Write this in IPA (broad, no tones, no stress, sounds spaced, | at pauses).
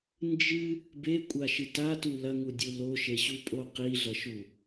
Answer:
n d͡ʒ ɨ | b e kʷʼ a ʃ ɨ t a t u l ɐ ŋ u dʲ u l o ʃ e ɕ u pʼ o q i ɮ ɐ ʃ u